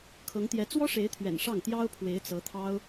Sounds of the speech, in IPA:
kʰ ɤ˧˥ ŋ t̪ j ɛ˧˥ t͡s w ɔ˥ ʂ e˧˥ ɪ̯ t̪ʰ ɥ ɛ̰˨˩ n ʂ ɑ˥˩ ŋ t̪ j ɑ˥ ʊ̯ pʰ w e˧˥ ɪ̯ t͡s ɤ˧˥ t̪ʰ ɑ˥ ʊ̯

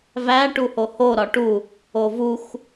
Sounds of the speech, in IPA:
v æ ʈ u h o h o ɾ ɒ ʈ u | o v u x

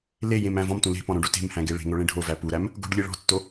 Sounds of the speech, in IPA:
l e j ẽ m æ̃ v ɔ̃ m t ũ l e̤ p ɔ̃ ɾ õ ɖ u t e̤ m h æ̃ ɡ e ɭ e̤ ŋ o ɭ ẽ ɖʱ o v æ p u ɾ æ m | ɡ o̤ ɖ lʲ e ɭ ɔ̤ tː o

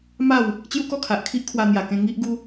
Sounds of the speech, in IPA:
m a˥˧ w | t͡ɕ j u˦ k ɔ˥˧ kʰ a˨ ʔ kʰ i˦ ʔ kʰ w a˧ n̪ j a˨˩ k ẽ˧ ŋ i˦ ʔ ɡ u˦

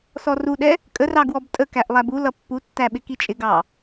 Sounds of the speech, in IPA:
s ɔ r u ɗ ɛ | kʼ ə r ɑ ɡ w ɔ b tʼ ə k æ ʔ lˠ æ b u l ʌ pː u tː æ ɓ ɪ k i t͡ʃʼ ɪ ɡ ɑ

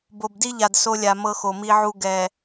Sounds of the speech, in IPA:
b o˨ b d i˦ ʎ a˨ d s o˦ lʲ a˨ m ɤ˦ x o˨ m i˦ ʕ u˦ ɡ ɛ˨

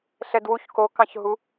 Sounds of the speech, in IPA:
ɬ ɛ d w u ç k o k ɑ̃ ç ɦ u

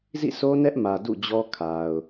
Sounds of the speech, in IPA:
z ḭ˦˨ sʰ o˦ n ɛ˦ ʔ m ä˨ d ṵ˦˨ d͡ʑ ɔ˦ kʰ a˨ ʊ̯

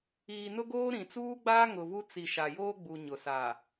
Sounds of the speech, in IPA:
iː˨ n ʊ˦ ɡ oː˦ ɾ ĩ˨ t͡s uː˦ ɡ͡b aː˦ ŋ ʊ˨ v u˦ t͡s i˨ ʃ a˨ j oː˦ ɡ͡b u˨ ɲ ʊ˨ s a˨

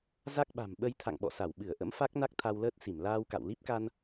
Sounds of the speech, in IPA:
z a˦˥ k̚ ɓ a̤˨˩ m ɓ ə˧ j t̪ʰ a̰˧˨ ŋ ɓ ɔ̰˧˨ s a˧˩ w ɓ ɨ˧˩ ə̯ ʔ ə̰˧˥ m f a˦˥ k̚ n a˦˥ k̚ t̪ʰ a˧ w l əː˦˥ t̚ s i˧˩ m l aː˧ w k a̰˧˨ w l i˦˥ p̚ k a˧ n

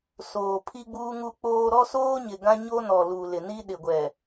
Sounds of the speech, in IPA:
s oː˨ pʰ i˦ ɡ͡b uː˦ ŋ u˦ k͡p oː˦ ɾ ɔ˦ s oː˦ ɲ ɪ˨ ɡ ã˦ ɲ o˦ n ɔ˨ l u˨ l ɪ˨ n i˦ ɗ ɪ˨ ɡʷ ɛ˨

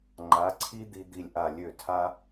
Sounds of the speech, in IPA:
ŋ͡ǃ a˩˥ ǀʰ i˥ d̪ i˧ d̪ i˥˩ lʲ ʔ a˥˩ lʲ ø˥˩ tʰ a˥

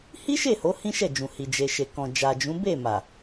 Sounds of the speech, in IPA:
h i˦ ʃ e˦˨ h o˨˦ h ĩ˦ ʃ ɛ˦˨ d͡ʒ ũ˨ h i˨ d͡ʒ e˨ ʃ e˨ k ɔ̃˨ d͡ʒ a˨ d͡ʒ ũ˨˦ b e˦˨ m a˨

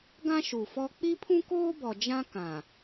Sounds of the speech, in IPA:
ɡ ã˦ ʃ u˨ f ɔ˦ k͡p i˦ pʰ ũ˦ k oː˦ b ɔ˨ d͡ʒ ã˦ k ã˨

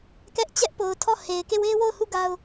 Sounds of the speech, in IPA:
k ɛ˦ ʔ t͡ɕ ɛ˦ ʔ p o˨ ʊ̯ tʰ ɔ˦˨ h e˨ ɪ̯ k e˦˨ w e˦ w o˦˨ ʊ̯ h u˦˨ ɡ a˦ ʊ̯

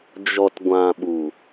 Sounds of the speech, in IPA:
d͡ʒ ɔ˨ t ɡʷ ã˨ ɓ u˨

